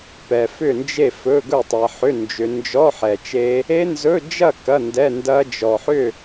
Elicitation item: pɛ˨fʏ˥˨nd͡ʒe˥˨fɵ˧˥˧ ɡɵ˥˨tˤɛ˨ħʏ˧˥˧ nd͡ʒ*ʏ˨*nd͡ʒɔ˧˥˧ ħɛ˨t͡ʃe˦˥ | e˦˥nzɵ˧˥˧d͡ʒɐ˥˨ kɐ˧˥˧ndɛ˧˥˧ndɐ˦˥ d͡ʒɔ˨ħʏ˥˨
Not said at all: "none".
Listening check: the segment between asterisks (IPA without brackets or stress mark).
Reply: ʏ˨